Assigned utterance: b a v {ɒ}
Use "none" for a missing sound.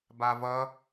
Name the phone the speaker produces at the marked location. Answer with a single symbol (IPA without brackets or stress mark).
ʌ